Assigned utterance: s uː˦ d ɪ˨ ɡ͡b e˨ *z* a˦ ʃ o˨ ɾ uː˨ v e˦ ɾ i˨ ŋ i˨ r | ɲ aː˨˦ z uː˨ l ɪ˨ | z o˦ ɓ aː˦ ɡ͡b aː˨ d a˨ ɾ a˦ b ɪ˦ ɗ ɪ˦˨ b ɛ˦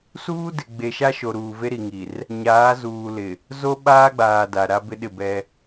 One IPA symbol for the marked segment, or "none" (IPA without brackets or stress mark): ʃ